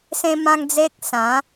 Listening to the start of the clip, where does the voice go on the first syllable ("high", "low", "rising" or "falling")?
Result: high